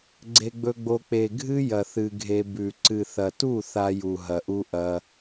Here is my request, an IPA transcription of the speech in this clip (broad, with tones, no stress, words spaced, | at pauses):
ɡ͡ǀe˧ɡ͡bɵ˧ɡ͡bo˧ k͡pe˨ ɡʱɨ˦ jɐ˨ θɨ˧ɡʱe˧ bʉ˨ ǀɨ˨θɐ˨tu˦˨ θa˧ju˨ɦɐ˨ʔu˧ ʔɐ˧